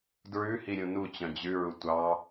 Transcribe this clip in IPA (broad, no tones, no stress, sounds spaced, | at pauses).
d ɹ ʉ h i ɾʲ ũ n u t͡ɕ œ̃ d͡ʑ ʉ ɹ u tʷ ɑ